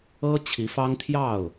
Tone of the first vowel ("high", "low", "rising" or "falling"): high